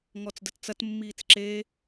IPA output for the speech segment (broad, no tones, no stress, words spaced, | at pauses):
ŋɔt͡sdətt͡sɐt mːiːt͡sǁe